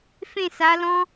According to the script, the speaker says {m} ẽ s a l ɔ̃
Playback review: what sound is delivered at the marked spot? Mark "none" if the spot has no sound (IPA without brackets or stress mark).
f